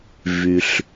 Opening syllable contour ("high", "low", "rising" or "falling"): low